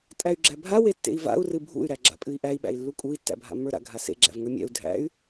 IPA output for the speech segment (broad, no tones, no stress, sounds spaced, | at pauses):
tʼ æ y̯ ɡ͡ǁ æ bʱ a w e tː ḛ i̯ v a̰ u̯ r ɨ bʱ ṵ y̯ ɾ æ ɡ͡ǁ a̰ pʼ ɨ i̯ ʔ æ i̯ ɓ æ̰ i̯ lː u kʼ u i̯ tː æ̰ bʱ a̰ mː ə˞ ɾ a̰ ɡʱ a s ḛ ɡ͡ǁ æ̰ v ŋ ə˞ mʲ æ̰ u̯ dʱ æ̰ y̯